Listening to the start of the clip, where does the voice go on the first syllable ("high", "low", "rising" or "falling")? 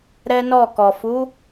high